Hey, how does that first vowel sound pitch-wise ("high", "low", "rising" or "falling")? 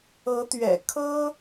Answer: rising